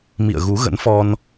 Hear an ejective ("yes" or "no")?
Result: no